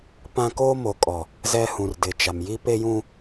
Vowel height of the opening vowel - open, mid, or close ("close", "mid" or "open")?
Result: open